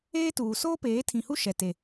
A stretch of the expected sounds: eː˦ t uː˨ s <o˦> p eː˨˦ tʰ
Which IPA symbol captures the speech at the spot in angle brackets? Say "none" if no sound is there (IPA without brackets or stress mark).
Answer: oː˦